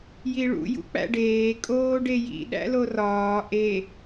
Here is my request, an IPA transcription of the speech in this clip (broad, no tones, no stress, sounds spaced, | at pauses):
j i ɭ ṵ j ṵ k͡p æ̰ ɖ eː kʼ oː ɖ e j ḭ ɗ æ̰ l o r ɒː ʔ e